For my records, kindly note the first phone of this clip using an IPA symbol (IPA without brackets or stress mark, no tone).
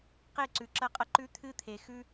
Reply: q